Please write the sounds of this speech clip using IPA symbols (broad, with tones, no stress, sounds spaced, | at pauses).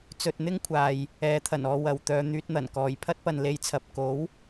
t͡s ɵ˧ t̚ n̪ ɪ˥ ŋ kʷʰ aː˨ j | ɛː˨˥ t̪ʰ ɐ˨˩ n ɔː˧ w ɐ˨˧ w t̪ œː˧ n̪ yː˧ t̚ n̪ ɐ˨˩ n k ɔː˨˩ j pʰ ɐ˥ t̚ p ɐ˨ n l e˨˧ j t͡sʰ ɐ˨ p̚ k o˨˥ w